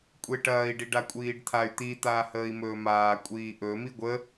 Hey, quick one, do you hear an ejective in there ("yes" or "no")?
yes